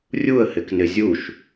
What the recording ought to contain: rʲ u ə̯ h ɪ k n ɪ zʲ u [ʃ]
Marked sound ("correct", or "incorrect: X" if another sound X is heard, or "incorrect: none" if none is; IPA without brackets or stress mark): correct